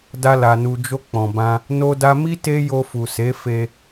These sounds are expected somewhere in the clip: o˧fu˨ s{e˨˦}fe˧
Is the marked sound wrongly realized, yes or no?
no